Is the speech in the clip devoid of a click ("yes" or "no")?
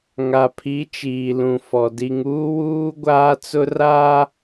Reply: yes